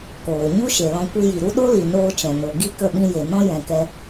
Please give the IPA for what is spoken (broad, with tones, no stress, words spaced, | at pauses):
koː˨ɲu˦ʃe˨lɔ̃˧ kʷi˧ji˨ɾu˦ ɗo˦li˨ noː˧t͡ʃɛ̃˨no˨ ɡi˦˨kə˦˨ɓĩ˧je˨ nɔ̃˦jɛ̃˨kɛ˧